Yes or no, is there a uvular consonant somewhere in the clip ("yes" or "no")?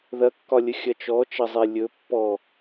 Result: no